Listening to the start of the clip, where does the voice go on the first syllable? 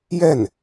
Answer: falling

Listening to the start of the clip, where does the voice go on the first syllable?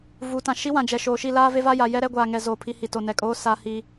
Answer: rising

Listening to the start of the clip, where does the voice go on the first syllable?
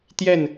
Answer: falling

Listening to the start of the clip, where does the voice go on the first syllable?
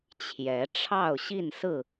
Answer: rising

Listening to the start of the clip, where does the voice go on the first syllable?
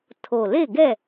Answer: low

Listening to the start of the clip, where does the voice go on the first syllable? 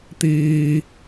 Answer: low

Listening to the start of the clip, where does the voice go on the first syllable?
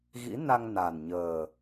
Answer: rising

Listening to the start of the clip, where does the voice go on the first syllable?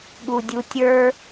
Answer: low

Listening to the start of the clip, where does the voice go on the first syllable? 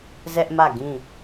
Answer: high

